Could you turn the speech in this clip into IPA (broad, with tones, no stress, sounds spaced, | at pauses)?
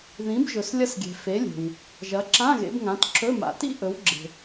ð ĩ˨˥ b ʒ ɵ˨ s lʲ ɐ˥ s ɡʲ e̤˨ f e˨˥ lʲ e̤˨ w | ʒ ɐ˨˥ ǁ ã˧˥˧ ɣ ḛ˨˥ b ŋ ã˨˥ t ǁ ɵ˧˥˧ m a̰˨ t ḭ˥ ʔ ɵ˨˥ w ɡ͡ǁ e̤˨